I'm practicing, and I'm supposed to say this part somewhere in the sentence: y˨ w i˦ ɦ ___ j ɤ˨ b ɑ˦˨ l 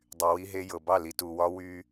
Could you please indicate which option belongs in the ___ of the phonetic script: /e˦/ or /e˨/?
e˦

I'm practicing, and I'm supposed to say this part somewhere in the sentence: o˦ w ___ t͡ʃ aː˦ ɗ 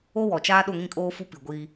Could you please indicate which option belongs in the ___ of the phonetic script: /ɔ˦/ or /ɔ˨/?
ɔ˨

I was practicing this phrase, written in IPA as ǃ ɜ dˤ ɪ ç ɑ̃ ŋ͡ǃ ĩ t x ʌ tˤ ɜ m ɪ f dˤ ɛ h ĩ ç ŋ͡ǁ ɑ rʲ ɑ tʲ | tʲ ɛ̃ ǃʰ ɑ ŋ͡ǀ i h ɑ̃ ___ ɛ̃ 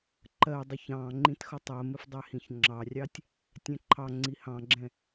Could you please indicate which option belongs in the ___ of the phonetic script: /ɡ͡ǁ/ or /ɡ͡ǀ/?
ɡ͡ǁ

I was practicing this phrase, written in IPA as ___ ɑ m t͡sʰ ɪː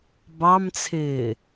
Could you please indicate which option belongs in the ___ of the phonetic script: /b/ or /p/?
b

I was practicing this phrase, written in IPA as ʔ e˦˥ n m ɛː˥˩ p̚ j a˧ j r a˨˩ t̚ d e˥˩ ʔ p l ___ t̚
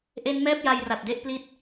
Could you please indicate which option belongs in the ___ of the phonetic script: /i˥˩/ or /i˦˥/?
i˦˥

